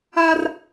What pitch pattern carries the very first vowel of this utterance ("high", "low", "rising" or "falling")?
high